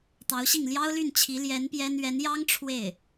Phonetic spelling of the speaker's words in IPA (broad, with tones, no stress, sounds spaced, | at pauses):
t̪ ɑ˧˥ ʊ̯ ɕ i˥˩ ŋ l j ɑ˥ ʊ̯ l y˥˩ n t͡ɕʰ i˧˥ l j ɛ˧˥ n p j ɛ˥ n ɥ ɛ˧˥ n j ɑ˥ ŋ ʈ͡ʂʰ w e˥˩ ɪ̯